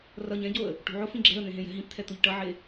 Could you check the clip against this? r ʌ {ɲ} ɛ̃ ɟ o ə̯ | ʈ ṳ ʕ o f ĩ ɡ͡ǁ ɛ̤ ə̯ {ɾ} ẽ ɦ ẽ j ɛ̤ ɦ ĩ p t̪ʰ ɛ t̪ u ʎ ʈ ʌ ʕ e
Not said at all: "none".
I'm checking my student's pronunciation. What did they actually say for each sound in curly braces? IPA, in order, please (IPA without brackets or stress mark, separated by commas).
ɲ, n̪